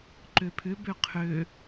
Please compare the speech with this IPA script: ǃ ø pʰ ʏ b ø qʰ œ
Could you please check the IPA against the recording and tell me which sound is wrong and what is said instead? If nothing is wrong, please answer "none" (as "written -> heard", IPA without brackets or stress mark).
œ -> ø